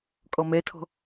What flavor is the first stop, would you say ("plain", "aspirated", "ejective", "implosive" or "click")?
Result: ejective